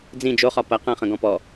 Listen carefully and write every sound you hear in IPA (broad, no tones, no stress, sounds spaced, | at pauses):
d͡z ĩ d͡ʒ o χ ɒ p ɐ q ɐ̃ χ ə̃ ɡ ɔ̃ p ɔ